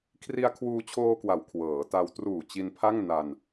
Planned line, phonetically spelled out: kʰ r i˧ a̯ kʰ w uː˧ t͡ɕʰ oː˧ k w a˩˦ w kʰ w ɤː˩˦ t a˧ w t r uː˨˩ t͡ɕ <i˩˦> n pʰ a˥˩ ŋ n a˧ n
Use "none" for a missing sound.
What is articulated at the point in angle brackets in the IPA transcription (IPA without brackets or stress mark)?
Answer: i˧